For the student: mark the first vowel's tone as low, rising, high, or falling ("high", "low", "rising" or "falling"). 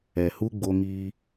low